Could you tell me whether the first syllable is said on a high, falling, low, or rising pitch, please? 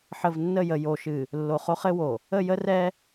low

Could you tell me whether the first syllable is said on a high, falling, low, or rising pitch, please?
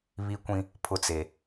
high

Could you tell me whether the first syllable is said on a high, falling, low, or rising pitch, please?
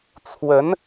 rising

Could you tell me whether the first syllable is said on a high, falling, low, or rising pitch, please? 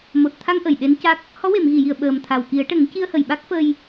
low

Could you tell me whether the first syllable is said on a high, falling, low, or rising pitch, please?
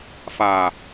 low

